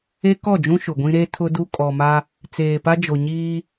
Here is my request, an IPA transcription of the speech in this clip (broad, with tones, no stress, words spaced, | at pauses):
e˦kɔ˦˨d͡ʒũ˦ ʃʊ˨ɡʷĩ˦ ɾe˦ tʰʊ˦du˦ kʼɔ˨ma˦ | t͡seː˨pa˦d͡ʒo˨ɲiː˦